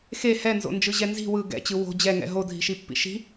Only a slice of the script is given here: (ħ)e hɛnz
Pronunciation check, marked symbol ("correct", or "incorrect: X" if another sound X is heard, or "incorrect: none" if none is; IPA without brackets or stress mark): incorrect: x